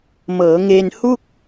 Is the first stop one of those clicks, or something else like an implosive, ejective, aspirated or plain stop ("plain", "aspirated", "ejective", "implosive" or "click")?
plain